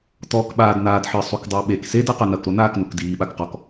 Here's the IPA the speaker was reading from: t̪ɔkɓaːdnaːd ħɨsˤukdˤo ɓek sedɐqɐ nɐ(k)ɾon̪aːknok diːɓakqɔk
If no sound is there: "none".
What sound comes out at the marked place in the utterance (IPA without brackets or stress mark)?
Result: k